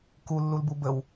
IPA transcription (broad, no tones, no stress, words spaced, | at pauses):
kulːulbu bəw